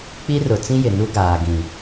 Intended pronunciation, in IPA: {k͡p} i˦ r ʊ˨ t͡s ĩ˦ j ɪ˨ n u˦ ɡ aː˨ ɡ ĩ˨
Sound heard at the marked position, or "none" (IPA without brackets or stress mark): k͡p